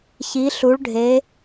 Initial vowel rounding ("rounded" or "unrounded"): unrounded